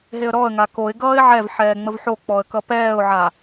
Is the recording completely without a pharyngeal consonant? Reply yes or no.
no